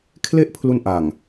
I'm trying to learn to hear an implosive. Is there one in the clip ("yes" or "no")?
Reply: no